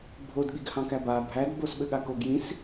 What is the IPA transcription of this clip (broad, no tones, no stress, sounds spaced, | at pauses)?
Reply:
bʱ o d ɠ i ɡ h ɑ̃ k æ b a bʱ æ d b o s ɓ ɘ ɠ a k o ɡ j ĩ s